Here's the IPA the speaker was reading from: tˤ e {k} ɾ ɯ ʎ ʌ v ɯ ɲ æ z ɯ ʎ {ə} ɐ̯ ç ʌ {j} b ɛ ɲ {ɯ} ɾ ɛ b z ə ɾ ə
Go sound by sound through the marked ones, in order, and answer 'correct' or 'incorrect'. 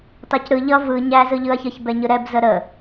incorrect: c, incorrect: ɯ, incorrect: ç, correct

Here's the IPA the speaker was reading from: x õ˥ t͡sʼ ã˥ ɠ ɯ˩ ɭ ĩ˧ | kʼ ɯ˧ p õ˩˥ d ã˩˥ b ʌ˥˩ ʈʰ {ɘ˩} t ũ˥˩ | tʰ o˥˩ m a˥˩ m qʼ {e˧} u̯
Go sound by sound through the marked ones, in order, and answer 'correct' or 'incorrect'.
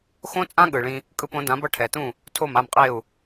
incorrect: ɛ˩, incorrect: e˥˩

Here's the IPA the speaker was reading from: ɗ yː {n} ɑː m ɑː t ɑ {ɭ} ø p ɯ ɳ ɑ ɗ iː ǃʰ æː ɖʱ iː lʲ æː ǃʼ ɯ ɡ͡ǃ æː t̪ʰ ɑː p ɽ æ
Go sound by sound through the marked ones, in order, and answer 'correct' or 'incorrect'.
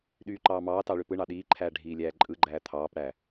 incorrect: ǃ, correct

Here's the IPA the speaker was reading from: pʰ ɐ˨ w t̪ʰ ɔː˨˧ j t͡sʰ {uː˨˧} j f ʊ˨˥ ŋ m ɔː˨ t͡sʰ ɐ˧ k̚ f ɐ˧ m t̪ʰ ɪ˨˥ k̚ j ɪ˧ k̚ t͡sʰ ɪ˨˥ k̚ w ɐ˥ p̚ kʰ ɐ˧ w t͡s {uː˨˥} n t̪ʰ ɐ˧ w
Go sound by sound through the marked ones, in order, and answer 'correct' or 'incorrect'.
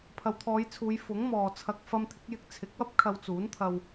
correct, correct

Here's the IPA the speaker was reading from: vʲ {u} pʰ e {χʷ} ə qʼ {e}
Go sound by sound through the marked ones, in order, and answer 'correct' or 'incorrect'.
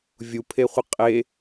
correct, correct, correct

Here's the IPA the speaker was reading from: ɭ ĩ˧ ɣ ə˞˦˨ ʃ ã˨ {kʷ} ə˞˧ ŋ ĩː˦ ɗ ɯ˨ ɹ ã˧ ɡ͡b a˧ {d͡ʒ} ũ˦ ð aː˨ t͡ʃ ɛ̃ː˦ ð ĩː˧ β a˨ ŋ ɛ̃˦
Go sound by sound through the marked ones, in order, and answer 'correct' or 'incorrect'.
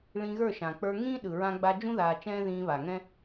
incorrect: k͡p, correct

